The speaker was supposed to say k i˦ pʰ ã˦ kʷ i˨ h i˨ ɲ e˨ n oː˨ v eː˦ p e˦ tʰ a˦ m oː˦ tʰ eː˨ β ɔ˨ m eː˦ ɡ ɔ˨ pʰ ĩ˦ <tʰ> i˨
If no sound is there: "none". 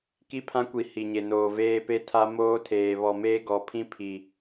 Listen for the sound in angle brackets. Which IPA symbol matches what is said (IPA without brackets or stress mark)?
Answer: pʰ